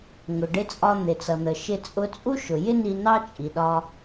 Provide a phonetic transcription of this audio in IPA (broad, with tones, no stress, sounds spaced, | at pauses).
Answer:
ŋ ʊ˩ ɖ ɪ˧ t͡sʼ ɒ˧ n̪ ɪ˩ t͡s ʌ˩ n̪ ə˩ ʃ ɪ˧ t͡sʼ ʊ˧ t͡sʼ u˥ ʃ ʊ˩ j ɪ˥ n i˧ n ɑ˥ t͡ʃʼ i˩ ɗ ɒ˧